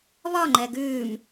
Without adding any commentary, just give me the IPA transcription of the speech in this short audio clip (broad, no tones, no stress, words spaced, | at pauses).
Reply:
βɒŋ͡ǃɛ ɡʉːm